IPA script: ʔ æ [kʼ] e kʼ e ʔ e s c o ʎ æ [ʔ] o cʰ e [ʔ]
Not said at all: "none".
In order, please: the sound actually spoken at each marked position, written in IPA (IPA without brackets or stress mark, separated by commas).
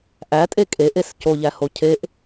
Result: tʼ, h, ʔ